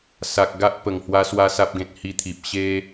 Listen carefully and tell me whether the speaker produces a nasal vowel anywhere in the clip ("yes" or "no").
yes